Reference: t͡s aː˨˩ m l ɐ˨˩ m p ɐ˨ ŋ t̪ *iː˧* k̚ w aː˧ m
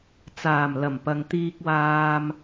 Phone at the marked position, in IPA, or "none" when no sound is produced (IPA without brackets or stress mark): iː˧